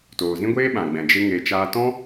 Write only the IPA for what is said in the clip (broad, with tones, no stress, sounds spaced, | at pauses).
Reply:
t oː˨ z ĩ˦ ɡʷ eː˦ ɓ ã˨ ɡ͡b ɛ̃˨ d͡ʒ e˦ ŋ e˧ t͡ʃ aː˦ t ɔ̃˦